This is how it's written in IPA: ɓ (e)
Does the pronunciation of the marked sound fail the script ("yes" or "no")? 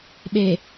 no